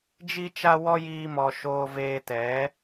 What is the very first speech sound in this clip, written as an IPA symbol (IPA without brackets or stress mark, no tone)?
d͡ʒ